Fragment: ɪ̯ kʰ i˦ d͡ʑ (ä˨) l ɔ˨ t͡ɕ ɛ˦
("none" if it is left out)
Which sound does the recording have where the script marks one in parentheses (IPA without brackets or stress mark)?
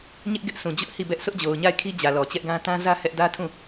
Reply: ä˨